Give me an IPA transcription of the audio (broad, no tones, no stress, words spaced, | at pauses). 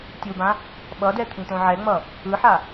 tʲubã | ɓʌdɛ t̪ʰĩt̪õʕɛŋ͡mʌ | ɯħa